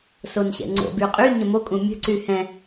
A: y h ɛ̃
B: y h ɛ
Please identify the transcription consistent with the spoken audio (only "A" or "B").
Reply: A